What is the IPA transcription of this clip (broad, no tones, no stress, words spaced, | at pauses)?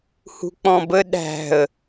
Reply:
hṳk͡pɔ̃bə ɗæ̤ə̯